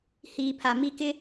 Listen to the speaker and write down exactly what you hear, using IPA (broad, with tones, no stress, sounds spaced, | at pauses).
h iː˨ pʰ a˨ m i˦˨ k ɪ˦